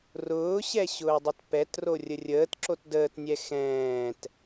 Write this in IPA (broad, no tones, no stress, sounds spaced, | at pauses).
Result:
r ʊː ɕ ɛ ɕ ʊː dˤ ʊ t p ɛ t r o rʲ ə rʲ əː t ǁ o t d əː t nʲ ɛ x ɛ̃ː t